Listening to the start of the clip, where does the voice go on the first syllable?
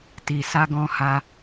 low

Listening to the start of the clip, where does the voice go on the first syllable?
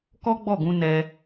high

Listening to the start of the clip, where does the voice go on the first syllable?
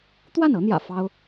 falling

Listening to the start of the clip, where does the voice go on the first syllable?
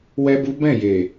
high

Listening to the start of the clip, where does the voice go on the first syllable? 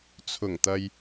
low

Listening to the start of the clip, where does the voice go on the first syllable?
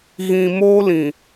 low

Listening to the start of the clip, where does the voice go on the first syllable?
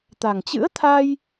low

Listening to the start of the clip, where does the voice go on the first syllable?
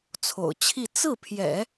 low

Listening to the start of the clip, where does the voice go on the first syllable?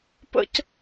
high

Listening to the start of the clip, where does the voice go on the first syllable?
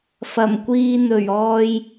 low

